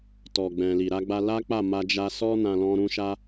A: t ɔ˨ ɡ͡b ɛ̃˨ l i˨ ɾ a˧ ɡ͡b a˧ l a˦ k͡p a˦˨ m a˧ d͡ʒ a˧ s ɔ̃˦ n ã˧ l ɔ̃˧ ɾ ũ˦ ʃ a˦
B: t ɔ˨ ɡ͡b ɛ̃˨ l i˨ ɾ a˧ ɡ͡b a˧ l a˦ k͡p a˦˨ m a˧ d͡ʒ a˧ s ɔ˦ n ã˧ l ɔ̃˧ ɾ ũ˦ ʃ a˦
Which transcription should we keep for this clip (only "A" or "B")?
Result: B